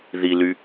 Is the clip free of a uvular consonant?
yes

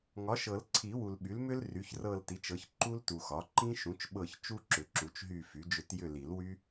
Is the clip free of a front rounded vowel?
no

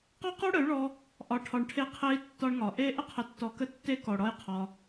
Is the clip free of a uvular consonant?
no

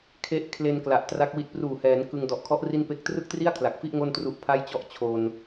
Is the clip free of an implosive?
yes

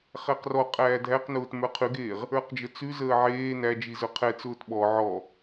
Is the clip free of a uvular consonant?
no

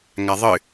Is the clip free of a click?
yes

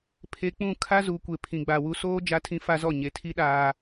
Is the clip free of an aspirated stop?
no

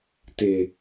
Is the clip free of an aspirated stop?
yes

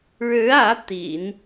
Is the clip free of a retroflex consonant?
no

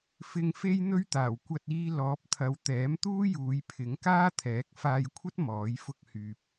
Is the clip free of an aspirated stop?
no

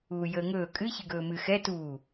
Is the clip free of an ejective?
no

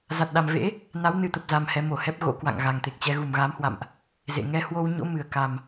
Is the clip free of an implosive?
no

